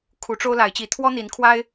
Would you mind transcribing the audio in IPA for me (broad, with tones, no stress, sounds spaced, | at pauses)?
kʰ u˨˦ ʈ͡ʂ o˦ ʊ̯ l a˨˦ ɪ̯ t͡ɕ i˨˦ t̪ʰ w ɔ˦ n̪ i˨˦ n kʰ w a˦ ɪ̯